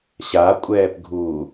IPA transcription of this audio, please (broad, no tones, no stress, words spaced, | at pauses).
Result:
ɕakʷʼɛːpɡʱuː